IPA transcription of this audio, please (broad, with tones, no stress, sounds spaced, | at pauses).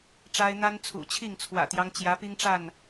ʈ͡ʂ a˦ ɪ̯ n̪ a˦ n t͡sʰ ṵ˨˩ t͡ɕʰ i˥˨ ŋ t͡sʰ w ä̰˨˩ t̪ j ɑ˦ ŋ t͡ɕ j ä˨˦ p i˦ ŋ ʈ͡ʂ a˥˨ n